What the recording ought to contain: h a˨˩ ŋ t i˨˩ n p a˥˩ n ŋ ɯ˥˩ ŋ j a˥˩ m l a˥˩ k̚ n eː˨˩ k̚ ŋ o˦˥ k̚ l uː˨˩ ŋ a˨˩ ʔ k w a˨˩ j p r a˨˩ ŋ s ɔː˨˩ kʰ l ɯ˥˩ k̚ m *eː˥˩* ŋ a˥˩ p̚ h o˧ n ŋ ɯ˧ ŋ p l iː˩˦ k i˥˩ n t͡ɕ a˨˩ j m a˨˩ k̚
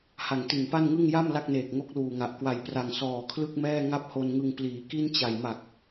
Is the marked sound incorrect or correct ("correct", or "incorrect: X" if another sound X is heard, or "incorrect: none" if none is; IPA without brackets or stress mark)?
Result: incorrect: ɛː˥˩